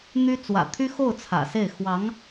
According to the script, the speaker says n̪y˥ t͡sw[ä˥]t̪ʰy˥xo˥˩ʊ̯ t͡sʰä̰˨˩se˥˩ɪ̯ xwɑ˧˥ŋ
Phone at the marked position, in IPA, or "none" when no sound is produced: ä̰˨˩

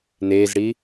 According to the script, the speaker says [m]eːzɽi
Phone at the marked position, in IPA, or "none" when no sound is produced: n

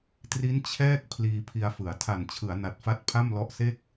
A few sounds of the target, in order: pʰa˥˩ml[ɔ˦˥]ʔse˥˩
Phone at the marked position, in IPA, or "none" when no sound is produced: ɔ˦˥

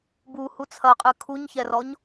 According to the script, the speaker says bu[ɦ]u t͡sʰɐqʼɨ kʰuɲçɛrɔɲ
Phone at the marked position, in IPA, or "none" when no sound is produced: h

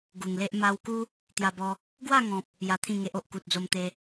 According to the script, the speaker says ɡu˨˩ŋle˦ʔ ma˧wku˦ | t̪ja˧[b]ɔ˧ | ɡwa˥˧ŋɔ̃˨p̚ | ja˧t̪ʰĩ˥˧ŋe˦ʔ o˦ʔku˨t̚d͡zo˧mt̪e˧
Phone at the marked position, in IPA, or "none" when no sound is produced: b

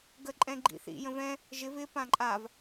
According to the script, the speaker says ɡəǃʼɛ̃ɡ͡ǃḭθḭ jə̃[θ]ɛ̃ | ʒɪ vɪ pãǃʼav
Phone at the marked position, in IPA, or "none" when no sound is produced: v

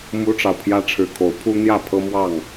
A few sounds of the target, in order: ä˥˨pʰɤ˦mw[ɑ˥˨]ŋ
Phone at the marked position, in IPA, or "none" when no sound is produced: ɑ˥˨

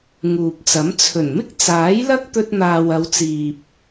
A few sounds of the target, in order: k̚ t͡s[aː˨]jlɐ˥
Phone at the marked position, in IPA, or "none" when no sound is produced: aː˨˥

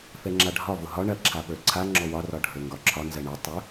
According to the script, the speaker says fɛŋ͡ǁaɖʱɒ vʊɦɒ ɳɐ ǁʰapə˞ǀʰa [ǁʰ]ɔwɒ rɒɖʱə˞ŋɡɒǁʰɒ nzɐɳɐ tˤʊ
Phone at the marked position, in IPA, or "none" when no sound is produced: ŋ͡ǁ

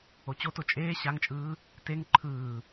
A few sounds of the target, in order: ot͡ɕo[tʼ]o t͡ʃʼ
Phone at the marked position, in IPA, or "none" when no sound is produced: t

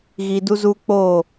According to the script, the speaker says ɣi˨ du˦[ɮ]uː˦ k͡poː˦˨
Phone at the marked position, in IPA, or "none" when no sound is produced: z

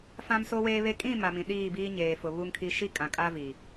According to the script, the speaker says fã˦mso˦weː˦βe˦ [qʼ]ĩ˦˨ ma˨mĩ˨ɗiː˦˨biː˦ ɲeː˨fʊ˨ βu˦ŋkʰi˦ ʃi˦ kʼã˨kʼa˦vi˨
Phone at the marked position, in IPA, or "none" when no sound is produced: kʼ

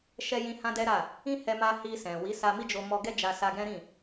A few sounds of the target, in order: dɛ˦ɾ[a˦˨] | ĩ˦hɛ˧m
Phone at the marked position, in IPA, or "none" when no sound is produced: a˦˨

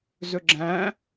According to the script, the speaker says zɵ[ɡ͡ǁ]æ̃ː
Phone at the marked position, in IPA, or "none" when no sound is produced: ɡ͡ǁ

